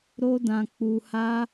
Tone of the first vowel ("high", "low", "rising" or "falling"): high